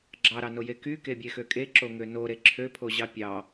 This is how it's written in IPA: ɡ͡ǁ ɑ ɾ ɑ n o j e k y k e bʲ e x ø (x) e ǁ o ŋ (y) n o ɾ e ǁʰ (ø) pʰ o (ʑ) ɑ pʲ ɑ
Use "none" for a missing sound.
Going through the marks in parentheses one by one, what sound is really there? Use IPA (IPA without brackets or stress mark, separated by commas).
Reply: kʼ, ø, ø, ʑ